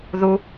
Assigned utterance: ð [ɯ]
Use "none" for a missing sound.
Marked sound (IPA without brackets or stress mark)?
u